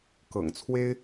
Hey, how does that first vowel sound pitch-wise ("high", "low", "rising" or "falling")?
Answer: low